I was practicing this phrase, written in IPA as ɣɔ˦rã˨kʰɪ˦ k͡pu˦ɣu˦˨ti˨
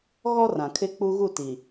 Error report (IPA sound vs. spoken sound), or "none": none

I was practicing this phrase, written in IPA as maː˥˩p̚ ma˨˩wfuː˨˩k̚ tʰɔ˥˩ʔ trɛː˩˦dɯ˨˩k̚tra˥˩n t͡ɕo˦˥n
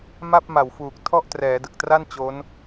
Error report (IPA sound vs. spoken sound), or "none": aː˥˩ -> a˥˩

